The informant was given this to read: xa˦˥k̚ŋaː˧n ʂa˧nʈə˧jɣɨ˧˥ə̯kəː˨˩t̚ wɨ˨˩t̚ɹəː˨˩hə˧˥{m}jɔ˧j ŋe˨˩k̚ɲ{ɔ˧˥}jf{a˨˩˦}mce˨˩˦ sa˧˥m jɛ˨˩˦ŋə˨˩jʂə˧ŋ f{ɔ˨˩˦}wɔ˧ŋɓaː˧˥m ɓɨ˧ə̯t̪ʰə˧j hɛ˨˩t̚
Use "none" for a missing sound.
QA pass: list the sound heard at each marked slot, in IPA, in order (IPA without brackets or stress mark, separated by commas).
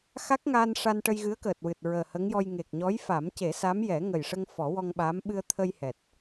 ŋ, ɔ˧˥, a˨˩˦, ɔ˨˩˦